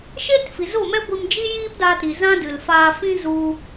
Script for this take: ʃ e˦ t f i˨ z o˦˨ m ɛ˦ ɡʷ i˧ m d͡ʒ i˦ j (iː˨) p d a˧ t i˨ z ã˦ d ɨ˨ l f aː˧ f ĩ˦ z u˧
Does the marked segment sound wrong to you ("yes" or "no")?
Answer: yes